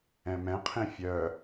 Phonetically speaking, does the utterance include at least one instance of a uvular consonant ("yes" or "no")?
yes